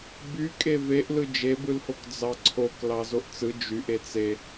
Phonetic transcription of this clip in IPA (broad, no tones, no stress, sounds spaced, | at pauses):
b y kʼ e v e ʔ l ɯ d͡ʒ e b ɯ l h o k d͡z ɑ ǀʰ o k l ɑ z o ʔ t͡s ɯ d͡ʒ y ʔ e t͡s e